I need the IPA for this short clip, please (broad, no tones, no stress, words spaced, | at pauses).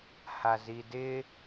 hazidɪ